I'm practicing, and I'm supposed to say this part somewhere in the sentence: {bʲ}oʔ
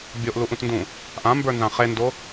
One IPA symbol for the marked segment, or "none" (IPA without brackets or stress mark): bʲ